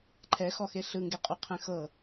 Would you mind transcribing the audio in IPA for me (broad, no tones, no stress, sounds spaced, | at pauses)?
ǃʰ ɛ x ɔ x e ɬ ɯ ŋ ɡ e qʼ u qʰ ɛ̃ x ɤ